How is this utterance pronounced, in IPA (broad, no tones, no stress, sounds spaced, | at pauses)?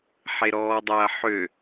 ħ e ɾ ɔː dˤ ɐː ħ ø